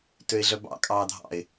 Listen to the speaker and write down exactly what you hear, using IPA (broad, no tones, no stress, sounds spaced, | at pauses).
t ø ɪ̯ ɮ œ b ɑ̰ kʼ ɑː dʱ ɑ̰ ɪ̯